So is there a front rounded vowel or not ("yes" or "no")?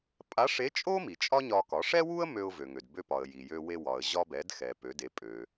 yes